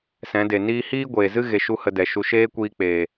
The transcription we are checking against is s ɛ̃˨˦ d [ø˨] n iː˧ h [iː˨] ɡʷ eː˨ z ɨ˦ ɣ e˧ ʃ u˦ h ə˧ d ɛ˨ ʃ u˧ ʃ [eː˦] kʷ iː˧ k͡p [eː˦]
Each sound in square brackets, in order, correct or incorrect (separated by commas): incorrect, incorrect, correct, incorrect